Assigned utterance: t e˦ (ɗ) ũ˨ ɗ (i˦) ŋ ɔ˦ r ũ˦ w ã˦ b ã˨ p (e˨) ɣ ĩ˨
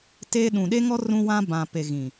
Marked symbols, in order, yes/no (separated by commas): yes, no, yes